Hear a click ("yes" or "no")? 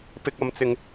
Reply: no